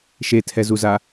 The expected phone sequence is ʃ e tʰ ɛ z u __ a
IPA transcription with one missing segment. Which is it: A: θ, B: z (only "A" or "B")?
B